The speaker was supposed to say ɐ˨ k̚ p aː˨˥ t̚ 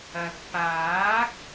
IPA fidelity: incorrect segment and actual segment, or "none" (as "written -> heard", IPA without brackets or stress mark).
t̚ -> k̚